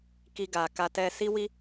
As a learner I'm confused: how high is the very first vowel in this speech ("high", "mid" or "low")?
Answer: high